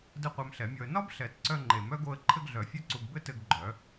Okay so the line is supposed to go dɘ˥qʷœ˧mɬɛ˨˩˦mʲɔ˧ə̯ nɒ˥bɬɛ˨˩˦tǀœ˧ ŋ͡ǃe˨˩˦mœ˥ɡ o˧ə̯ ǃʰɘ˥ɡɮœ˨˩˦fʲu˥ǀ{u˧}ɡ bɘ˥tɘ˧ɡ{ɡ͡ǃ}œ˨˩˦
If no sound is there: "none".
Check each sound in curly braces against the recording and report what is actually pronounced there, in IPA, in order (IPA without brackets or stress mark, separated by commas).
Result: u˧, ɡ͡ǃ